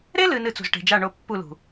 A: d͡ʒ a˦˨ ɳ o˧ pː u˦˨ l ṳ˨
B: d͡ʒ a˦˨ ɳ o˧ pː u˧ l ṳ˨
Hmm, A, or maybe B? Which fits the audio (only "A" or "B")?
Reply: A